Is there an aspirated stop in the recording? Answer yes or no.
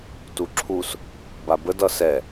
yes